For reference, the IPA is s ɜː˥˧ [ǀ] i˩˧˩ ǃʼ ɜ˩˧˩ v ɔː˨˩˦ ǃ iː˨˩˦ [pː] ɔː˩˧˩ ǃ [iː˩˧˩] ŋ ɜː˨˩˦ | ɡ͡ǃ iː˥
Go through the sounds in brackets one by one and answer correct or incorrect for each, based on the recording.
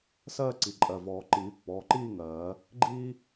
correct, correct, incorrect: iː˥˧

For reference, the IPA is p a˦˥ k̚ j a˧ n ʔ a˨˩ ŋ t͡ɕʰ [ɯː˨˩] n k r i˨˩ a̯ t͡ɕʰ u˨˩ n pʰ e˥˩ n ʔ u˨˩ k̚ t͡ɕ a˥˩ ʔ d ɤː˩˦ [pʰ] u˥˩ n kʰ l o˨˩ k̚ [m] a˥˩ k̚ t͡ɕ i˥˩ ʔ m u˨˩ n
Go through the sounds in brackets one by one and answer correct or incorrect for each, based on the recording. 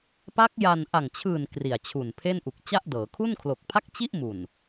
correct, incorrect: kʰ, incorrect: pʰ

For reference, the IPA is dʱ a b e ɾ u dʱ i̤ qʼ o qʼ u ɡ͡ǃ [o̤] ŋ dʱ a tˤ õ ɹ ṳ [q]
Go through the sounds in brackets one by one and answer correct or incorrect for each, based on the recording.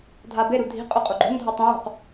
correct, correct

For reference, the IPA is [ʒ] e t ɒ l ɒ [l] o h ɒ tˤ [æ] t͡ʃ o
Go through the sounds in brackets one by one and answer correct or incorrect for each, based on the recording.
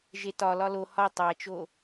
correct, correct, correct

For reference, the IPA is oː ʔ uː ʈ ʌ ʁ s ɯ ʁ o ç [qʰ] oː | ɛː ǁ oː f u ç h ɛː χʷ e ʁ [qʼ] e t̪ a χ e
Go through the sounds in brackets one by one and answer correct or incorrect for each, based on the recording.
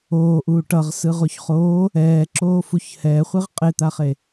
incorrect: χ, correct

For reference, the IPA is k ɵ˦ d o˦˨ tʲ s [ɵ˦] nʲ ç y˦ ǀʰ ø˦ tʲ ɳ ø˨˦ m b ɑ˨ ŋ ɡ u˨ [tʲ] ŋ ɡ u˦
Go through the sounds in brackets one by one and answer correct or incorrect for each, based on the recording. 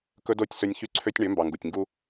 correct, correct

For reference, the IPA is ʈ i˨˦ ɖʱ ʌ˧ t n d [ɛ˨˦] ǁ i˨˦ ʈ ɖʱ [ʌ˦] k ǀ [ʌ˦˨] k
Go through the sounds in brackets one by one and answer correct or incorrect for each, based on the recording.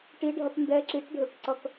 incorrect: ɛ˧, incorrect: ə˞˦, incorrect: ʌ˧

